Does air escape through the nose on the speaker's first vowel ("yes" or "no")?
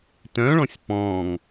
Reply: yes